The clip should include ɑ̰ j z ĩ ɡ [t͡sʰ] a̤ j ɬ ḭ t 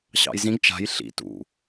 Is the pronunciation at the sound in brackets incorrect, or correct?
incorrect